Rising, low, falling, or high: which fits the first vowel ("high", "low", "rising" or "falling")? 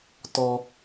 high